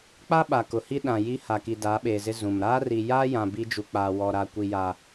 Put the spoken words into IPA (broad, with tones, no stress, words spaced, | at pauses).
k͡pa˦ɓa˨ kʊ˨hi˦ ɗã˨ji˦ha˨ki˨ daː˨˦ɓeː˨zɪ˦ zũ˨m ɾaː˦ri˨ jaː˦jã˨ bi˦ d͡ʒu˨k͡paː˨wɔ˨ɾa˨ kʷi˨ja˨